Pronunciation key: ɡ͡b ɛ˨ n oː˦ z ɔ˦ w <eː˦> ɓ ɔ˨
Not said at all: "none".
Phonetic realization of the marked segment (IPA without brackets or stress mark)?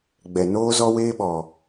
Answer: eː˦